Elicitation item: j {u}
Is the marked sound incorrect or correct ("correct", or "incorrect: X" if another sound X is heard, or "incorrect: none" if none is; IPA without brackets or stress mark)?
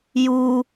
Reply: correct